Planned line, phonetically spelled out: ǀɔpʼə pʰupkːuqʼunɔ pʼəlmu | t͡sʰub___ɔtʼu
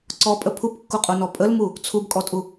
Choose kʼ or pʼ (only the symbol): kʼ